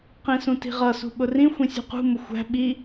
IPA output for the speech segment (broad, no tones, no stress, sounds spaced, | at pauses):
q ĩ s ũ t i̤ ʁ ʌ s ṳ ɓ ʊ r ĩ xʷ ĩ sʲ ṳ q ṳ m ʊ xʷ æ̤ ɓ i